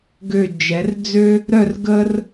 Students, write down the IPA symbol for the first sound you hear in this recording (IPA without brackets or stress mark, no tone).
ɡ